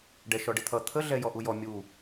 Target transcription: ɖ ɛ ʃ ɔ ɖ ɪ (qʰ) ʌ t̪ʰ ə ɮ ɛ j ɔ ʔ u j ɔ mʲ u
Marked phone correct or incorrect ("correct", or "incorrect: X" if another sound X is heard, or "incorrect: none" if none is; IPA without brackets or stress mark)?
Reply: incorrect: t̪ʰ